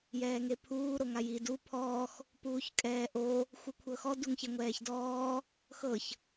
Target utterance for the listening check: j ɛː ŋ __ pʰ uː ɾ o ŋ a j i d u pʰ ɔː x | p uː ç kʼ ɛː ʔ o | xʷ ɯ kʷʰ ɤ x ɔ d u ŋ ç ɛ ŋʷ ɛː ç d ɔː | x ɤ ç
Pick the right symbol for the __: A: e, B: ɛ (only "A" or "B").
A